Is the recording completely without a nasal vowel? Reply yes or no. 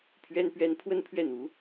yes